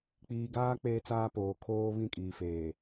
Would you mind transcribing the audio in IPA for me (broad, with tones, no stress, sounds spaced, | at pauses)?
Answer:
k͡p iː˨ ɡ aː˦ k͡p eː˦ t͡s aː˦ p oː˨ kʰ oː˦ β ĩ˦˨ kʼ iː˨ f eː˨